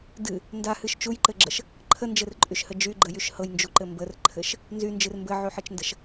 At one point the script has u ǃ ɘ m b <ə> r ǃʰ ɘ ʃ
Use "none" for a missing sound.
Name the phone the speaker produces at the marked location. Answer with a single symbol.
ə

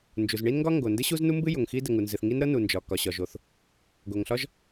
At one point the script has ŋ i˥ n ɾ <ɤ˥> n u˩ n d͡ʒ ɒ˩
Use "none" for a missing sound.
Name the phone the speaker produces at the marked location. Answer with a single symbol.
ɤ˥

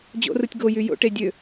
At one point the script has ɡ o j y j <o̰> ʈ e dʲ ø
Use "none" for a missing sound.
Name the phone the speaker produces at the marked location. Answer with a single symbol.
o̰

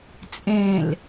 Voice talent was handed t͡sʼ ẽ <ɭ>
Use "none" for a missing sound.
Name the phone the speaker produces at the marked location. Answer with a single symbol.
l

